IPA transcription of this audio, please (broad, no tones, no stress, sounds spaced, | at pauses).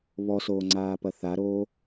β ɔ s oː ŋ͡ǀ aː p ɐ θ a ɾ oː